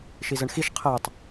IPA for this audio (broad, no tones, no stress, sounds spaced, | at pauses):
ʃ i z ə ɳ x i ʃ qʰ əː tˤ